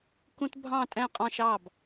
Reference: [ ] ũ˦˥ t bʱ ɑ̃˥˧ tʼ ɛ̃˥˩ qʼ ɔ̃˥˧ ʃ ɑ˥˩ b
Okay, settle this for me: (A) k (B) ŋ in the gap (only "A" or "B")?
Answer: A